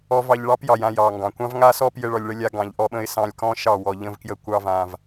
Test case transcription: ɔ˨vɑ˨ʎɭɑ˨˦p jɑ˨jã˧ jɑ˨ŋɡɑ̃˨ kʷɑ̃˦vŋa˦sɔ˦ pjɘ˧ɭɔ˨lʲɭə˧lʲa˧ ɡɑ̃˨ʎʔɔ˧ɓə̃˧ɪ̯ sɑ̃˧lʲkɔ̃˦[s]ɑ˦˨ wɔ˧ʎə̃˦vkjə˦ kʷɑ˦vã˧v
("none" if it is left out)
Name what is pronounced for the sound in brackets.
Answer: ʃ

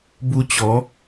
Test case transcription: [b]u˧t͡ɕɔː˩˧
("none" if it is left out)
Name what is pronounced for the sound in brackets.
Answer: b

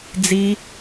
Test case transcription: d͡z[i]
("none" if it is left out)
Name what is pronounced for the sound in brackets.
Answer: i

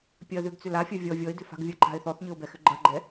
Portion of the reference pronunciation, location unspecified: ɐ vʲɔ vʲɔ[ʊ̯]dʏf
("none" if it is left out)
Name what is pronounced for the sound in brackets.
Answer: ɪ̯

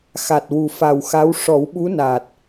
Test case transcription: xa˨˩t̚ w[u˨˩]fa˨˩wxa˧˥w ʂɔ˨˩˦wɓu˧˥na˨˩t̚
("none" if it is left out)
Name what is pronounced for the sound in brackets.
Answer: u˨˩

